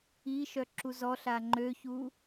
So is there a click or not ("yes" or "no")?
yes